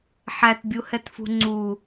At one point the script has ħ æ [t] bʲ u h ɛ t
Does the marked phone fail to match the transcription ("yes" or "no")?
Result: no